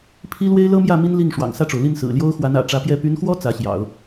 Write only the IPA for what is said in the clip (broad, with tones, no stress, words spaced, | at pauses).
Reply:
pʰi˥ lwe˥ɪ̯lɤ˥mjä˥˩ mi˥nli˥˩ŋ ʂwɑ̰˨˩ŋsä˥˩ʈ͡ʂo˩ʊ̯li˥˩n sɹ̩˨˩ljo˥ʊ̯xwa˧˥n ä̰˨˩ʈ͡ʂä˧˥pjɛ˥˩ py˧˥nxwɔ˥ t͡sä˧˥ɕjɑ̰˨˩˦ʊ̯